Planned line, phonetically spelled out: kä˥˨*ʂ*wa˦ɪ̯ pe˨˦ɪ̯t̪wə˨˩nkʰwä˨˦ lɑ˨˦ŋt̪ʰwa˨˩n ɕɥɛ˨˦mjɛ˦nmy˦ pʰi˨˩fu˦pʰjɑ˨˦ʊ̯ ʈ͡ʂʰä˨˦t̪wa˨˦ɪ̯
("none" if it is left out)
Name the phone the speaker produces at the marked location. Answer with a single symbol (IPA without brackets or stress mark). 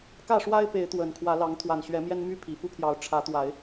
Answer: ʂ